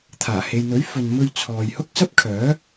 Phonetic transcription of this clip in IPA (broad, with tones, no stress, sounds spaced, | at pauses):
t̪ʰ aː˨˩ h e˨ j n̪ ɵ˨˥ ɥ f ɵ˨ n m ɵ˧ ɥ t͡sʰ ɔː˨ j h ʊ˥ k̚ s ɐ˥ p̚ kʰ œː˨˥